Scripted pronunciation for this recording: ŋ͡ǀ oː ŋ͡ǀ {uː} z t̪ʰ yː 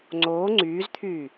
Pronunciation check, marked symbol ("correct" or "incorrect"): incorrect